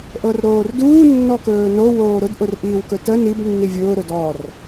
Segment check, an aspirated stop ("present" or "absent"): absent